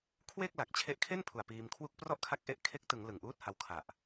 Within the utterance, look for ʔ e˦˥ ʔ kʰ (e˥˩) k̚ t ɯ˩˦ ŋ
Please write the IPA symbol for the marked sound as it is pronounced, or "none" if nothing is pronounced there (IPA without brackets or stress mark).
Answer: e˦˥